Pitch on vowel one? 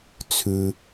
low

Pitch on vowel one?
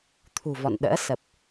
low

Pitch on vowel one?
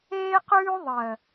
high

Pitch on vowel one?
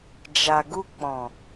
low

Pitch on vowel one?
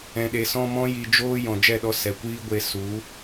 low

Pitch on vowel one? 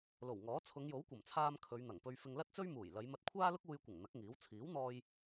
low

